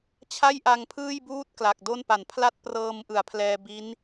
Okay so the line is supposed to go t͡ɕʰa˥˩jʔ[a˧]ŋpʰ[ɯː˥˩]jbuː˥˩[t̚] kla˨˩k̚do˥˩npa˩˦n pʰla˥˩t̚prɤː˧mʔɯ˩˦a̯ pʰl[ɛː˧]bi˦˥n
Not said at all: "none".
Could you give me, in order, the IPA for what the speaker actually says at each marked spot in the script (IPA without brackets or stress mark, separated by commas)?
a˧, ɯː˥˩, t̚, ɛː˧